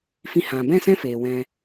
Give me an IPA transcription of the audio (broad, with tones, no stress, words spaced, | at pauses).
fĩ˧hã˨ bɛ̃˦˨sɛ̃˦ feː˨wɛ̃˧